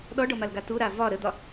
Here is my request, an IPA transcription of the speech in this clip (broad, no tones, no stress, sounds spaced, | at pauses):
ɗ ɔ ɖ ɔ m a l ɡ a t u ɾ a v ɒ ɾ ə d̪ ɒ